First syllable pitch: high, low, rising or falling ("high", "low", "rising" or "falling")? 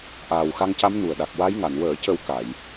low